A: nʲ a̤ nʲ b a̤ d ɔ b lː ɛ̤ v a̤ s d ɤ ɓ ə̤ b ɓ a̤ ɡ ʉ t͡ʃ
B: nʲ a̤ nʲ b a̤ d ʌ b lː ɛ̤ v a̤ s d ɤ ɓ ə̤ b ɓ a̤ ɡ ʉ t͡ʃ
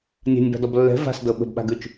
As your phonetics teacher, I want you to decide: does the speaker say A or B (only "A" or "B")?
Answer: A